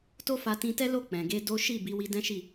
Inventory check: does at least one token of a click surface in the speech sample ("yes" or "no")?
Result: no